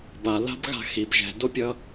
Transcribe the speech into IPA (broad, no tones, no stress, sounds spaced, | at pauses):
b a l a̤ b ɣ a̤ x i b ʒ ɛ̤ d o pʲ ʌ